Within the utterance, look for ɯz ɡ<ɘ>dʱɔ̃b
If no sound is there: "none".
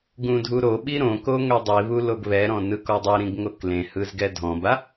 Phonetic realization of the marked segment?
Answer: ɛ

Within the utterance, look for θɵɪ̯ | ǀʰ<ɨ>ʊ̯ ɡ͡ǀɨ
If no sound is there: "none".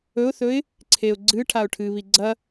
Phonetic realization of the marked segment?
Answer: e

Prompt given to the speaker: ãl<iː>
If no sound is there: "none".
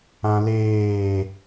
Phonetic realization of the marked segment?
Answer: eː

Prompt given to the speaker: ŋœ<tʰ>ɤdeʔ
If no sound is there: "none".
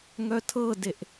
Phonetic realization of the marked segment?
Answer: tʰ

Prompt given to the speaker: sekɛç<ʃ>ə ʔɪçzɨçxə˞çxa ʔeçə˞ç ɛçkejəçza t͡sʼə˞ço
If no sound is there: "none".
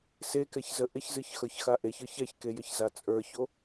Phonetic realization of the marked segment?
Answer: z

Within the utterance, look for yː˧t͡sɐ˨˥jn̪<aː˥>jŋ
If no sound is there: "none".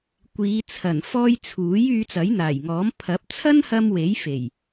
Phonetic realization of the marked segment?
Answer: aː˨˩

